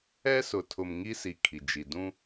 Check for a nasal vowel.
present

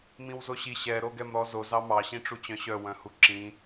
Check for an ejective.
absent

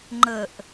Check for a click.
present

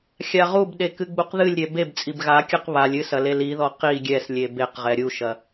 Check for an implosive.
present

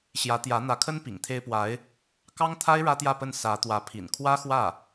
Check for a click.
absent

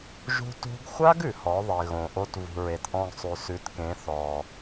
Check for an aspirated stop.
absent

